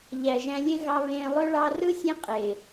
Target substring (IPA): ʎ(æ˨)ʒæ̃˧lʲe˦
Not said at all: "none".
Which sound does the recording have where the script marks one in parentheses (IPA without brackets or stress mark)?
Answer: æ˨